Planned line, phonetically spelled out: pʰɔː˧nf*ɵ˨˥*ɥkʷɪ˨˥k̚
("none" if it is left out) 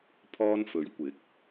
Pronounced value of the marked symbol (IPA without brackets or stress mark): ɵ˨˥